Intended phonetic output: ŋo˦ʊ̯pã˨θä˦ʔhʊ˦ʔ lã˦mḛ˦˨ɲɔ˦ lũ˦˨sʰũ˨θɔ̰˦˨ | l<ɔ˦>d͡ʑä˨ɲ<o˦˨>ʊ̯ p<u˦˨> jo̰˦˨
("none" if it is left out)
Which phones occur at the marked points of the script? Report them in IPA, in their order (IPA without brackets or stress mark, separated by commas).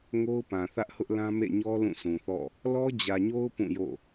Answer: ɔ˦, o˦, ũ˦˨